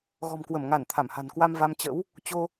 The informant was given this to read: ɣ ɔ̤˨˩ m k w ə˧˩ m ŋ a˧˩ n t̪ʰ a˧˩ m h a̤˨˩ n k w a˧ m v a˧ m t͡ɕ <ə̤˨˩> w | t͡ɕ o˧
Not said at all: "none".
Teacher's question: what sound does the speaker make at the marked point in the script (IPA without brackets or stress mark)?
ə̰˧˥